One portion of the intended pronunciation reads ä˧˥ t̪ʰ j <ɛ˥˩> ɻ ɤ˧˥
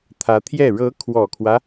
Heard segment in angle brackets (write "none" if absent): ɛ˥˩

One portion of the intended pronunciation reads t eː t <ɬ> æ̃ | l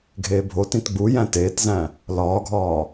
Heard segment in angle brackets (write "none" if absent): z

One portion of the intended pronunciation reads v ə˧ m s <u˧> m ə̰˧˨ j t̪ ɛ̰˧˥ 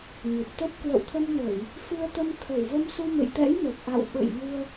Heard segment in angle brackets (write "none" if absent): u˧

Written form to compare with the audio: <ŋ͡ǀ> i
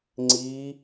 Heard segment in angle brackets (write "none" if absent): ŋ͡ǀ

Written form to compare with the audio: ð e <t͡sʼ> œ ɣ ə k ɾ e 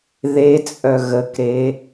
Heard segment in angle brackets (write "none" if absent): t͡sʼ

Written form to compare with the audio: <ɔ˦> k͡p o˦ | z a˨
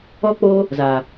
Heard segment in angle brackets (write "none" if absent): ɔ˦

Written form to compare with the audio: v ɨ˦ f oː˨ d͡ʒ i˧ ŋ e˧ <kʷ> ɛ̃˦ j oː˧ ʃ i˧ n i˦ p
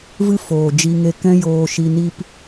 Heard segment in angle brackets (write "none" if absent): k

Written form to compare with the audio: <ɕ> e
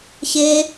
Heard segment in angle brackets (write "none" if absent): ɕ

